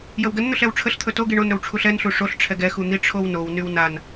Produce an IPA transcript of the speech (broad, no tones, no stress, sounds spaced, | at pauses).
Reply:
j ə w ɡ ə n n̪ ɵ ɬ ɛ w ʈ͡ʂʰ ə ɬ t̪ʰ ɵ t o ɡ i ɳ o n ɾ ɵ w ʈ͡ʂʰ u ɬ ɛ n ɬ u ʂ o ɬ ʈ͡ʂʰ ɛ ɡ ɛ x u n̪ i ʈ͡ʂʰ o w n o w n y w n a n